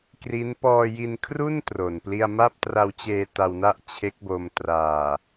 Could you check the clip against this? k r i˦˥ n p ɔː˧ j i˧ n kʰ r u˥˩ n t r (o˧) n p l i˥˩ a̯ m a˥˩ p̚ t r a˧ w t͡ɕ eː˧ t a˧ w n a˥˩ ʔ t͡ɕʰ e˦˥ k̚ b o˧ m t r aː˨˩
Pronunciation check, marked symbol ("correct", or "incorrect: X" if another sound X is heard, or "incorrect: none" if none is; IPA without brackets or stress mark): incorrect: o˨˩